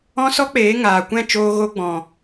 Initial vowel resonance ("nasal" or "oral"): nasal